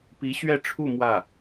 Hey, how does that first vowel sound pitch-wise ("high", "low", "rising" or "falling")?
rising